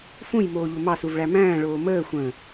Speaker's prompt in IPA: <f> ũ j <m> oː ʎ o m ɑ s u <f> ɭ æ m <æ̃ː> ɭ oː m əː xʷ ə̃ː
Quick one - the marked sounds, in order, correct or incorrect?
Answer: correct, correct, incorrect, correct

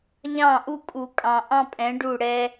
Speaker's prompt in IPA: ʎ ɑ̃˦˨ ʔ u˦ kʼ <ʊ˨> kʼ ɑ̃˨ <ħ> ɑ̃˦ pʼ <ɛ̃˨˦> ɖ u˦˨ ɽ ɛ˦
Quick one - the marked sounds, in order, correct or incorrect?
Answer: incorrect, incorrect, correct

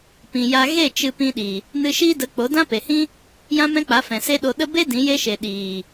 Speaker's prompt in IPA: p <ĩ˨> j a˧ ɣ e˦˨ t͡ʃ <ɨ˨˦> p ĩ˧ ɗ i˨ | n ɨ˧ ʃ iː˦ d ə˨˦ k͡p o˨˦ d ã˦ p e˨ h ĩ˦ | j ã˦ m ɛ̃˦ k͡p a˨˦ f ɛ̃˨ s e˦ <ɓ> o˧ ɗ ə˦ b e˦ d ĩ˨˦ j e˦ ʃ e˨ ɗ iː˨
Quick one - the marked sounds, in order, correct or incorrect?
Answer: correct, incorrect, incorrect

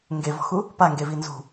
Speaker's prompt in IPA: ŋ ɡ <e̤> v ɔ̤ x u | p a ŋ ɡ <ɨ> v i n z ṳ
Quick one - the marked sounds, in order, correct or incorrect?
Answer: incorrect, incorrect

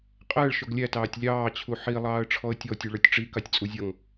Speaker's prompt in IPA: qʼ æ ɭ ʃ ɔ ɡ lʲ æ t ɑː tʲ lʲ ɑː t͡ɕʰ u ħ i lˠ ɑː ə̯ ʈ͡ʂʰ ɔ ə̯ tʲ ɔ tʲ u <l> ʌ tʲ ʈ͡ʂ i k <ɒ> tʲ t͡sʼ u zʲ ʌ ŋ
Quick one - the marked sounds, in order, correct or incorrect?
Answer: incorrect, incorrect

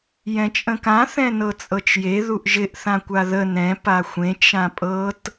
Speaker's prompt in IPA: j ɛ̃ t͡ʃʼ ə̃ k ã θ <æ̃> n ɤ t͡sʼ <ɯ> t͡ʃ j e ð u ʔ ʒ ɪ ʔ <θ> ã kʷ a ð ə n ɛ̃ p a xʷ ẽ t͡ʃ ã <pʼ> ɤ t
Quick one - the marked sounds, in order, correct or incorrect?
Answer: incorrect, incorrect, correct, correct

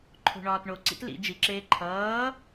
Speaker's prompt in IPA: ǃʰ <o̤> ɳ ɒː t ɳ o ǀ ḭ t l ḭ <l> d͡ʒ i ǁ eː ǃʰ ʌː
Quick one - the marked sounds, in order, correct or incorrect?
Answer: correct, incorrect

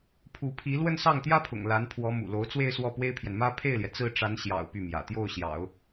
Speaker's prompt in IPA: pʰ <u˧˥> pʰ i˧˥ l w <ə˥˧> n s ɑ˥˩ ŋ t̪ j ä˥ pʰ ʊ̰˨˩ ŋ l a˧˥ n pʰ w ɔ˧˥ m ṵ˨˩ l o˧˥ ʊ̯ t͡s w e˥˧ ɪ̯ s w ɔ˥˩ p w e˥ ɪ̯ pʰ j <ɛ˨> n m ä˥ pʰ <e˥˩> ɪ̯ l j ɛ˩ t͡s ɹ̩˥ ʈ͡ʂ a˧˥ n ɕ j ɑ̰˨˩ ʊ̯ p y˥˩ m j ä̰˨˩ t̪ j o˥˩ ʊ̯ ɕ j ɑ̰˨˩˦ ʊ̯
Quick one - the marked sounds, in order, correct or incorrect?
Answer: correct, correct, correct, correct

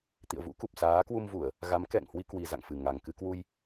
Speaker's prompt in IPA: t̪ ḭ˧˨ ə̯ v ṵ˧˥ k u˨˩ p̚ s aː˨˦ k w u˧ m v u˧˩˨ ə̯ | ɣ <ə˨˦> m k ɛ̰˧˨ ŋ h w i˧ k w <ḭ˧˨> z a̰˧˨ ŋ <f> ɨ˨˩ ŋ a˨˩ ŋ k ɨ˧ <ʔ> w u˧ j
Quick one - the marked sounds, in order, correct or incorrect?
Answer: incorrect, incorrect, correct, incorrect

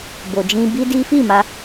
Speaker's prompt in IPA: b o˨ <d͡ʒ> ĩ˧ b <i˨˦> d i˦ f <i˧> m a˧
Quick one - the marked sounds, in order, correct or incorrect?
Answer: correct, incorrect, incorrect

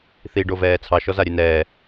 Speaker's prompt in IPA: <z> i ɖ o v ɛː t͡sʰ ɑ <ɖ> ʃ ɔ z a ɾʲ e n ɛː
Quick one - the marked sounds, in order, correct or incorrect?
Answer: incorrect, incorrect

